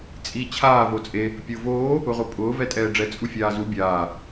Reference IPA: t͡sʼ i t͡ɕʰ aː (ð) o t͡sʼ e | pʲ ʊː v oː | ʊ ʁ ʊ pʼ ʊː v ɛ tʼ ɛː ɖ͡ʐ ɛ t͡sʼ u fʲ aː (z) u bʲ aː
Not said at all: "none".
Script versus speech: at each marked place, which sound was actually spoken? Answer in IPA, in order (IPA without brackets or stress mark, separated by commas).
v, z